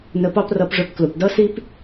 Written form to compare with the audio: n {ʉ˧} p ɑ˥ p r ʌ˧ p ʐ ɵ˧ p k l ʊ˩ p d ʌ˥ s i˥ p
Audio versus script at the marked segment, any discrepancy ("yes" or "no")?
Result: yes